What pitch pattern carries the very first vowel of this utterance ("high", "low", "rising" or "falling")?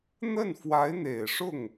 falling